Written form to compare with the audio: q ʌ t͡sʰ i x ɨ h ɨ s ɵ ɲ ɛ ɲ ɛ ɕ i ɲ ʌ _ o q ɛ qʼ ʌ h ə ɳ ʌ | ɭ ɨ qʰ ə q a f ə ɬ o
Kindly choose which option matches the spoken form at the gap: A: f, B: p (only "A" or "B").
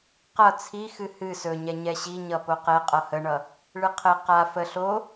B